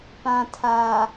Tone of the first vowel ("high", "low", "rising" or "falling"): low